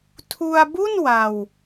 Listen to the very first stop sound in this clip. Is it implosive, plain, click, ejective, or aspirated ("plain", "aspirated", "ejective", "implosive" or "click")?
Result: aspirated